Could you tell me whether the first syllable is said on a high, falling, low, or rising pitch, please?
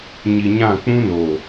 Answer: low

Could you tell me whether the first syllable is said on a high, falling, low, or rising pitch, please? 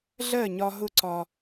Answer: falling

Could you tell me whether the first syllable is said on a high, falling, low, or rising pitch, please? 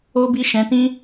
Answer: high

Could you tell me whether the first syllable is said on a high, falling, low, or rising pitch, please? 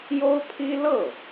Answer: high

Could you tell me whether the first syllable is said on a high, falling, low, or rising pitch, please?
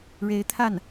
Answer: rising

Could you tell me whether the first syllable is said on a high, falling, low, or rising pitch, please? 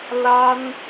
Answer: high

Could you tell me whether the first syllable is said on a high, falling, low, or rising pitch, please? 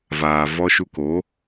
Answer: low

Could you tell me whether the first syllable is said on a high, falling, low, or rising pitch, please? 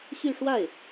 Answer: falling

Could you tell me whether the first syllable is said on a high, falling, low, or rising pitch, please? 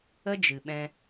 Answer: high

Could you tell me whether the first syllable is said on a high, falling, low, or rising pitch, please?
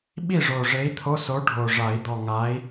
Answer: falling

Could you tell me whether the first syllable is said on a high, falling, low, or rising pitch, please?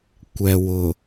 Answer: low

